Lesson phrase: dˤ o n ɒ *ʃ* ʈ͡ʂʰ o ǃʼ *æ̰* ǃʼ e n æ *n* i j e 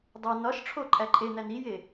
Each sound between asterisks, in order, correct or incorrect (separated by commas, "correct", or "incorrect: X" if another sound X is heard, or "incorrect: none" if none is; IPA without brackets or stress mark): correct, incorrect: æ, correct